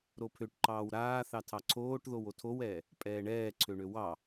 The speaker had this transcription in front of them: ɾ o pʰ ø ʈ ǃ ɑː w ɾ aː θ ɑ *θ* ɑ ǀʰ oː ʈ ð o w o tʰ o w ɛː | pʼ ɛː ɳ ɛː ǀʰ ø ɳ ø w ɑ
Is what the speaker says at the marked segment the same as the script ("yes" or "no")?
no